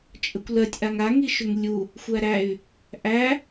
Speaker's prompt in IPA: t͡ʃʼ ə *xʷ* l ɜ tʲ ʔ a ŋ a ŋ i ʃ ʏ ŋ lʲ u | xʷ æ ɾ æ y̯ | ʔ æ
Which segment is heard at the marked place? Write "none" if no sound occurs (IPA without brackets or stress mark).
kʷ